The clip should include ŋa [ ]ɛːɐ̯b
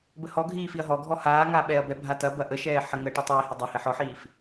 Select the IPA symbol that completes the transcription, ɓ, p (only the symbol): ɓ